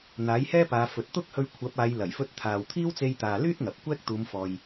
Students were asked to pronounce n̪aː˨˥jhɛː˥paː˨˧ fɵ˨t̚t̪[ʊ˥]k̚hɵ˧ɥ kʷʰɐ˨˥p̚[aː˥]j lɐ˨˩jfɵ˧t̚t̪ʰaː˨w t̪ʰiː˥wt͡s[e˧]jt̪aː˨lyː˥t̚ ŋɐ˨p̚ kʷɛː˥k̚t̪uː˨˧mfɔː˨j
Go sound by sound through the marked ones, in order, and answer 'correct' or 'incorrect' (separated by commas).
correct, incorrect, correct